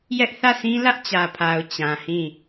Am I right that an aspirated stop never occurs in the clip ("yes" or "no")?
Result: no